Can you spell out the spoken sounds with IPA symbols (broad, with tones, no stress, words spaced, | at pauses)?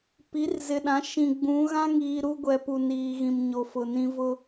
pi˨˦rzɪ˨ɗã˨˦ ʃĩ˨ɡ͡bũ˨˦ ɣã˦ŋiː˨ ɾu˦ɡʷɛ˨pu˨ niː˨ɣĩ˨m ɲo˨fʊ˨nĩ˦ vʊ˦